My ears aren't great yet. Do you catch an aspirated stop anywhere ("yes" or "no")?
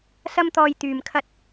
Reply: yes